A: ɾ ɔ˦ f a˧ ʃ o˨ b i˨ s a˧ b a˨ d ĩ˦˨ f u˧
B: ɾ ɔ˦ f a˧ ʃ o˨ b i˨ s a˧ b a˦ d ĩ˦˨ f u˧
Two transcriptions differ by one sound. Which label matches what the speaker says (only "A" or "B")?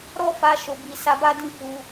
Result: B